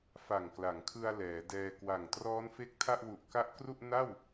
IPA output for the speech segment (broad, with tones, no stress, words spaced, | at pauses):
fa˨˩ŋkla˩˦ŋkʰɯ˧a̯ lɛː˩˦dɛː˧ kwa˨˩ŋ trɔː˦˥nfe˦˥k̚tʰa˥˩ʔwu˨˩ʔ ka˦˥ʔkru˥˩ʔna˥˩w